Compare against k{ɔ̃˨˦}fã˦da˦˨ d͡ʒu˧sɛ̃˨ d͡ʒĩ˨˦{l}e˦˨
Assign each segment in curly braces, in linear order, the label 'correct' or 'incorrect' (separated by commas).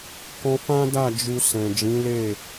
incorrect, correct